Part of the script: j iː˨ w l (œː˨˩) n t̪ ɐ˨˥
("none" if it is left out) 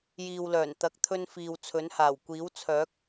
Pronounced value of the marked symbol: œː˨˩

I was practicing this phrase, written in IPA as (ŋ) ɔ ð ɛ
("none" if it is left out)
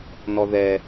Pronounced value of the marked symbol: n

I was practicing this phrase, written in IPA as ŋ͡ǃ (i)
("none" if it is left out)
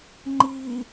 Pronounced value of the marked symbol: i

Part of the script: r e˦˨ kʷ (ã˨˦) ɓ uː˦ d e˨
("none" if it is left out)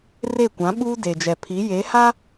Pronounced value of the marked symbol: ã˨˦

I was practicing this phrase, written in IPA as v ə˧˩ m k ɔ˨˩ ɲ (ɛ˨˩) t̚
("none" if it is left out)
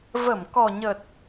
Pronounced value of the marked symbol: ə˨˩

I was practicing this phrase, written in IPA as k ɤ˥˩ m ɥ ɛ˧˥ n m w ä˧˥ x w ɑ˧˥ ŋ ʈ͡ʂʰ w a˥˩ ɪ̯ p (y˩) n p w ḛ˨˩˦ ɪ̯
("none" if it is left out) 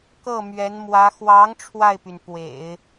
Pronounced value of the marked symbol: y˩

